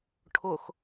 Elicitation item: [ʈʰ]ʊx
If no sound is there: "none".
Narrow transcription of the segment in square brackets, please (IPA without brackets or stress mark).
ʈʰ